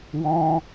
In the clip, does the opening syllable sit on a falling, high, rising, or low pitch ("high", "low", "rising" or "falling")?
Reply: high